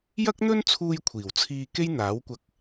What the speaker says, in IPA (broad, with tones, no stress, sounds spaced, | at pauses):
j ɐ˥ k̚ n̪ ɵ˥ n t͡sʰ uː˧ j kʷʰ iː˨˩ w t͡sʰ iː˧ k e˥ j n̪ aː˨˥ w kʷ ɐ˧ k̚